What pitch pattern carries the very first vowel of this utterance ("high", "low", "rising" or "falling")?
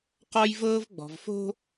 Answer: high